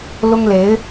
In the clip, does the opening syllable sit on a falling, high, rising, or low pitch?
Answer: high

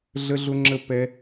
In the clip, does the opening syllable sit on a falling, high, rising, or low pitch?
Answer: high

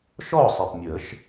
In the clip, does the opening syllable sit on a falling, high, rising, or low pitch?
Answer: falling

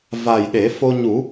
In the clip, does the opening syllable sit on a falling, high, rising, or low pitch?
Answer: low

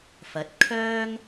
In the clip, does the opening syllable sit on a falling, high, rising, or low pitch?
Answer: rising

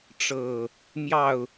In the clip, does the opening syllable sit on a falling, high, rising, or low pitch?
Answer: low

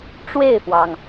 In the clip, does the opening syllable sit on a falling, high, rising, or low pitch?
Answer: falling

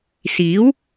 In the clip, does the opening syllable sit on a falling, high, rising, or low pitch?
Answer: rising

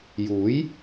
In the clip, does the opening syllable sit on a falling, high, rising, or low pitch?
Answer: rising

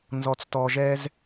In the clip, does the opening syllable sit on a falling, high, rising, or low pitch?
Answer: low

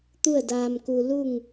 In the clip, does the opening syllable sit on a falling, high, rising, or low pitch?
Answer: falling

